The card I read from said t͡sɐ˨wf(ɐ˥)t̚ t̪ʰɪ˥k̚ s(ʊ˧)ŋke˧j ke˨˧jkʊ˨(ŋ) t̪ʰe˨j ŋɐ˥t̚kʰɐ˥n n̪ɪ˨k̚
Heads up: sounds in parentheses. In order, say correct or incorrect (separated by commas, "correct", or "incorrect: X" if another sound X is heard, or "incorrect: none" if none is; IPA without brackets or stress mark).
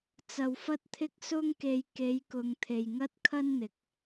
correct, incorrect: ʊ˥, correct